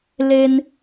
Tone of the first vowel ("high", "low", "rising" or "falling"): high